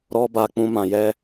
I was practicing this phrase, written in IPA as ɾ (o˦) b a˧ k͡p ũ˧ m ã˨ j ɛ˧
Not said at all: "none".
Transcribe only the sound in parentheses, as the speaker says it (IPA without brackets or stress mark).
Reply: ɔ˦